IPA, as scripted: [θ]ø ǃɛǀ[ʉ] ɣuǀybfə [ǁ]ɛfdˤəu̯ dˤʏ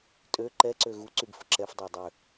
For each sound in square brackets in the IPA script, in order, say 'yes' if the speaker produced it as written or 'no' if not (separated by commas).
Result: no, no, yes